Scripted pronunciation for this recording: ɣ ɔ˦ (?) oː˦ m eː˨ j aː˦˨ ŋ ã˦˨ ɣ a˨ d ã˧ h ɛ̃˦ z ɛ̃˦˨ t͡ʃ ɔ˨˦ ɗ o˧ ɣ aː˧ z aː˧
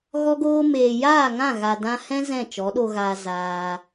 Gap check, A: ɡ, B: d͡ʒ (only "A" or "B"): A